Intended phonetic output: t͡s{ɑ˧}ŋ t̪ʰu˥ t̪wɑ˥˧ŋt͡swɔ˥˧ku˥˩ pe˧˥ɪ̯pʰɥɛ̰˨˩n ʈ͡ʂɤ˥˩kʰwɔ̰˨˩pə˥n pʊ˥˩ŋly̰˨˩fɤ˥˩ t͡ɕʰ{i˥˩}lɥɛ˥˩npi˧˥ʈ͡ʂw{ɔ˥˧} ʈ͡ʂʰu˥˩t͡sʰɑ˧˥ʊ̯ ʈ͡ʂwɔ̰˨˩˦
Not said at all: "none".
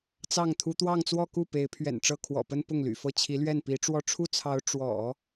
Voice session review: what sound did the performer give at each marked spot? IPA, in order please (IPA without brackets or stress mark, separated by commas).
ɑ˥˩, i˧˥, ɔ˥˧